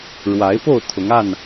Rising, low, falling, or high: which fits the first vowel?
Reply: rising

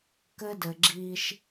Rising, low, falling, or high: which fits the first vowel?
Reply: high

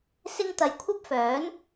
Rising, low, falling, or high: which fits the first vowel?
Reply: high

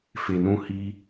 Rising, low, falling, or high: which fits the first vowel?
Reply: low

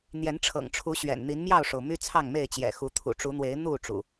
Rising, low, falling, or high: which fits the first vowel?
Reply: rising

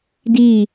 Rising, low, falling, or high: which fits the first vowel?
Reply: falling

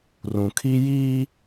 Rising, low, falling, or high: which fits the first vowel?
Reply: low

